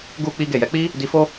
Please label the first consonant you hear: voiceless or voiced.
voiced